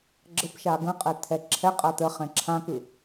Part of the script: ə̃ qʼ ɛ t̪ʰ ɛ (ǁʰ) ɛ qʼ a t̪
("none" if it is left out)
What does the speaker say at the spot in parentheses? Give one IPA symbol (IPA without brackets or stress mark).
ǁʰ